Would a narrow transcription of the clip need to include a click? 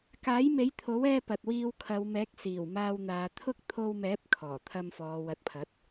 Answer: no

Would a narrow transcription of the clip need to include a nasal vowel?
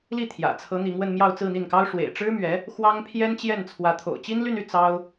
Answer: no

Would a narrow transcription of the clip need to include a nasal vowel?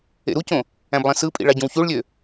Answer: yes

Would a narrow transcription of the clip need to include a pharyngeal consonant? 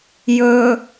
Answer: no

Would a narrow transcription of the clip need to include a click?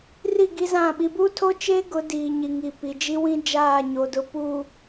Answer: no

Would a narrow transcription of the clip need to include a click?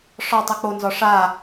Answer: no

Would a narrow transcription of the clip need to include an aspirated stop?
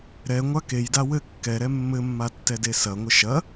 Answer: no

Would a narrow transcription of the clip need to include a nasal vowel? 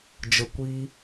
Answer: no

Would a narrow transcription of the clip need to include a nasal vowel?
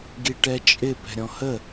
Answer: yes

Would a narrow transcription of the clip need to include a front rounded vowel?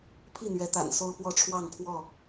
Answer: no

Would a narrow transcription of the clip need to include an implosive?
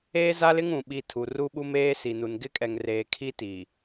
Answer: yes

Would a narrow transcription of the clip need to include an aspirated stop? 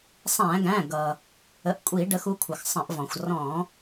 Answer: yes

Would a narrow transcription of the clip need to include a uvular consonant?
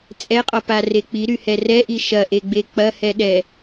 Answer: yes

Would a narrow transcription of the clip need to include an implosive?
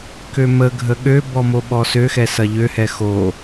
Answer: yes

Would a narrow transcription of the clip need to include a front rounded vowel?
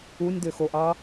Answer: yes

